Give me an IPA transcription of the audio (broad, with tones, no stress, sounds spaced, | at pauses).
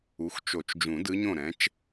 u˩˥ x t͡ʃ o˨˩˦ t͡ʃ d͡ʒ ũ˨˩˦ d ɯ˧˥ ɲ õ˥˩ ɾ ɛ̃˩˥ t͡ʃ